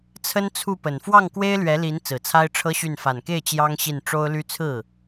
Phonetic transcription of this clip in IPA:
t͡sʰə˥nt͡sʰu˥˩pə˨˩n fwɑ˥˩ŋkwe˥ɪ̯lɥɛ˧˥li˧˥n t͡sɹ̩˨˩t͡sʰa˥ɪ̯ʈ͡ʂʰɤ˥ɕy˥˩n fa˨˩nke˥˩ɪ̯ t͡ɕjɑ˥ŋɕi˥˩n ʈ͡ʂo˥ʊ̯ly˥ t͡sʰɹ̩˥˩

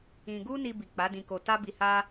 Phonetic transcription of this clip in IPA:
ĩ˧ ɡu˦ni˧bi˨ k͡pa˨˦dĩ˧ko˧ ta˦bi˧ha˦

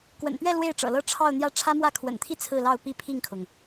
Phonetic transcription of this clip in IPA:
kwə̰˨˩npɥɛ˥˧ lwe˥˩ɪ̯ʈ͡ʂɤ̰˨˩lɤ˥ ʈ͡ʂʰɑ˥˧ʊ̯n̪jä˥˩ ʈ͡ʂʰä˥mwä˥˩ kʰwə̰˨˩nt̪ʰi˥˧ t͡sʰɹ̩˥˧lɑ˥˧ʊ̯ pi˥˧pʰi˥˩ŋkʰʊ˩ŋ

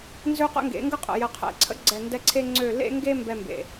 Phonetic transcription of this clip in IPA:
nzø˦qə̰˦ŋɡḛ˨˦ ŋɡə˦qʼə̰˨ jə˨qʰɛ̰˨ǀʰə̰˦ɡ͡ǀɛ˨ ndɛ˦ǀʰe˦ŋ͡ǀø˦˨ lḛ˦ŋɡe˦ mbɛ˦mbḛ˨

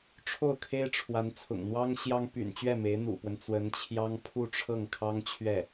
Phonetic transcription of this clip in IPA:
ʈ͡ʂʰo˥˩ʊ̯kʰe˥ɪ̯ʈ͡ʂʰwa˧˥n t͡sʰʊ̰˨˩ŋn̪wɑ˥ŋɕjɑ˥ŋ py̰˨˩nt͡ɕɥɛ˥˩ me˧˥ɪ̯n̪ṵ˨˩pwə˦n t͡swə˧˥nt͡ɕʰjɑ˥ŋ pʰu˥˧ʈ͡ʂʰɤ˥˩ŋkʰɑ˥ŋ t͡ɕʰɥɛ˥˩

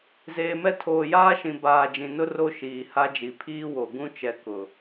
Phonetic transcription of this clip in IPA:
zeː˨mɛ˦ tʰoː˨jaː˦ʃĩ˨ baː˨d͡ʒĩ˨ nʊ˦ro˦ʃiː˨ ha˦d͡ʒi˨pʰiː˦wo˨ ɡũ˦ t͡ʃɛ˨kʊ˨

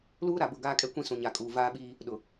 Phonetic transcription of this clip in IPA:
luː˦ ɾa˨bʊ˦˨ ɡaː˦kʼɛ˦ kʷĩ˦sũ˨ɲa˨kʼuː˨ vaː˦ɓiː˦ | ɗʊ˨

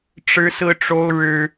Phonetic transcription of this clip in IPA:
ʈ͡ʂɻ̩˥sɹ̩˥ʈ͡ʂo˥ʊ̯ ɻɻ̩˥

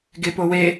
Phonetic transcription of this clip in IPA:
ɡepowe

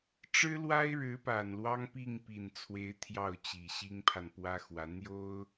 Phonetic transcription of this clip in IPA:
ʈ͡ʂɻ̩˥lwa˥ɪ̯ɻɻ̩˧˥ pa˨˩nlwɑ˥ŋpi˥˩ŋ pi˨˩nt͡sʰwe˧˥ɪ̯ t̪ʰjɑ˥˩ʊ̯t͡ɕi˨˩ ɕi˥ŋpʰa˨npwä˥xwä˧˥ n̪jo˥ʊ̯

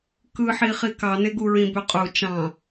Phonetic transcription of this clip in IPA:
kɯħiχi kɑneɡuɹĩ bøqʼu t͡ʃɑ̃

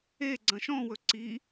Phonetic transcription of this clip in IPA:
eɡ͡ǀɐ̃ ʃɔ̃wɵ ǀi

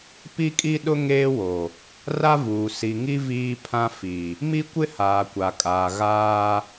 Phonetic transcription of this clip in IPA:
pi˦kʼi˦ɗʊ˦ ŋeː˦wo˨ | ra˦vuː˨ si˨ŋi˦ viː˦pʰã˦ fi˨ | mi˦kʷɪ˦ haː˨kʷa˨kʼaː˨ ɣaː˦

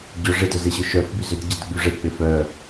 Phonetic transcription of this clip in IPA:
ɟœ ʐɪdœzeɕʏ ʃœfby zʏd ɟɪdɡ͡by ʐek͡pɪ fœ

